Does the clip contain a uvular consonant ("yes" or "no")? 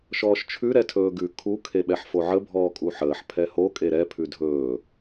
no